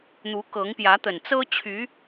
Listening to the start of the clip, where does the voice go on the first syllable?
rising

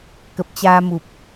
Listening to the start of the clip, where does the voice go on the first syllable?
low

